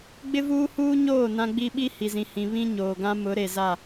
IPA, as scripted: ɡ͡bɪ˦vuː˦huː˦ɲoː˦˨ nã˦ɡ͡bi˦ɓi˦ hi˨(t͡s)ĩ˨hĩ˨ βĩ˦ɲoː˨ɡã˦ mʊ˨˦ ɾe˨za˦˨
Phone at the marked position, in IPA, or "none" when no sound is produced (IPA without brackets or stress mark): z